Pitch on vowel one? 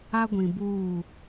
high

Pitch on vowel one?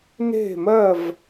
falling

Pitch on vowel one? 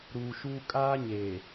low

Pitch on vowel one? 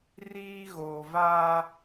high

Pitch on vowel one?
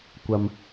low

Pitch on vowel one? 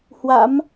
rising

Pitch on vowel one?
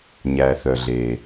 low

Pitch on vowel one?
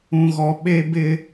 low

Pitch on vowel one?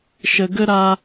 low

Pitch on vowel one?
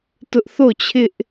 high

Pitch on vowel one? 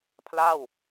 falling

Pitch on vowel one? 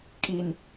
low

